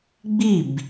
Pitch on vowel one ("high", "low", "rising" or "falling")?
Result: falling